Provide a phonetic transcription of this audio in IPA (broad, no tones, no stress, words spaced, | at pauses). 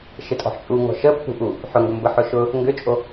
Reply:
ʃɪtʼɔ̤ħt͡ʃʼu ŋɔ̤ʃə pːṳʔu | ħʊŋɡʊmbə ħʊʃʊ | ŋɡʏt͡ʃʼo